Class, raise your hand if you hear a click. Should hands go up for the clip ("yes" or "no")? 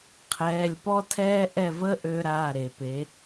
no